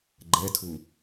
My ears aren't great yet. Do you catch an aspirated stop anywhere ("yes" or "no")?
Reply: yes